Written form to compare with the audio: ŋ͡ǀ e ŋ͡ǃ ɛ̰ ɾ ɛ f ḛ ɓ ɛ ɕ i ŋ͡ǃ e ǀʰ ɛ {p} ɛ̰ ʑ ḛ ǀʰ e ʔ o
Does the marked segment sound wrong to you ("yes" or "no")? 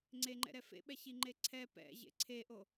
no